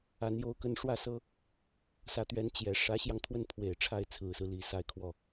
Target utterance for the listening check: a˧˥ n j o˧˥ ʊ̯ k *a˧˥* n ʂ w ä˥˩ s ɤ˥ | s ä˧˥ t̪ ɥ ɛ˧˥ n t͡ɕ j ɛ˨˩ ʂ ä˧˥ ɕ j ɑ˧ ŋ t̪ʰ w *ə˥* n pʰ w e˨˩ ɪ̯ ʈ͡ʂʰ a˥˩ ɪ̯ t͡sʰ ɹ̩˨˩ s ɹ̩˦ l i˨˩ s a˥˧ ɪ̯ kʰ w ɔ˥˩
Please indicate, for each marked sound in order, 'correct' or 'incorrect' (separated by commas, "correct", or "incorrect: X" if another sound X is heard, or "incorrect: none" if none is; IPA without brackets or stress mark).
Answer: incorrect: ə˧˥, incorrect: ə˥˩